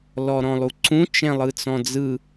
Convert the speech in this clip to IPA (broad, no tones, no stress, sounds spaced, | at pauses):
l ɔ ɾ ɔ̃ lˠ u ǀ ũ t͡ʃ ɛ̃ lˠ ɯ t͡s ɔ̃ d͡z ɯ